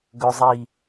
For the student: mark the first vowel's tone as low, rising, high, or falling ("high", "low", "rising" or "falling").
high